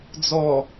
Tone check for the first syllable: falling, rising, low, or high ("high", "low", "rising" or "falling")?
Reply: low